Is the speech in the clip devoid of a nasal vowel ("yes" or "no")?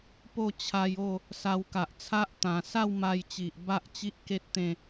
no